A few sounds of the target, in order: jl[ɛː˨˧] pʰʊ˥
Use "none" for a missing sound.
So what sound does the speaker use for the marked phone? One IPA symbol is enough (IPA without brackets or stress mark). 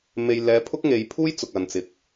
ɛː˨˧